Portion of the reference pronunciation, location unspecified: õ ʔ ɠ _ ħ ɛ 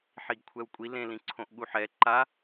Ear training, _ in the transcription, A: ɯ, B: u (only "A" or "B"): B